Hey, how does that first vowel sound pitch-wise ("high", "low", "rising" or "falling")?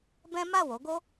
high